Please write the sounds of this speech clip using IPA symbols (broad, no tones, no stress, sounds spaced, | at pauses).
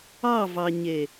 ɑ v ɑ ɲ e